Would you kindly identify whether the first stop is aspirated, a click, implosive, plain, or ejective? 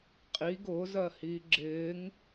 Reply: ejective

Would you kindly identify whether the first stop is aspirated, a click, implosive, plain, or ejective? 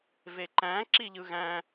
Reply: click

